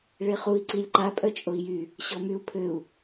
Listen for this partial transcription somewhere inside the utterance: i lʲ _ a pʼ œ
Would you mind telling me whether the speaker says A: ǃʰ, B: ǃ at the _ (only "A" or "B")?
B